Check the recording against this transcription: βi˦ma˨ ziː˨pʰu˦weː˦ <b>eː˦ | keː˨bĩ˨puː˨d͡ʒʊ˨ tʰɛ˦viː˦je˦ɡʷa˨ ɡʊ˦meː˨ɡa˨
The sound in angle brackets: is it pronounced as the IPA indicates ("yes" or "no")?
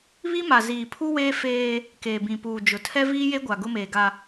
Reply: no